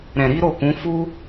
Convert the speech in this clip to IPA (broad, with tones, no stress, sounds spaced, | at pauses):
ɾ ɛ̃˨ ɾ i˨˦ ɾ o˦˨ k ũ˨˦ f u˦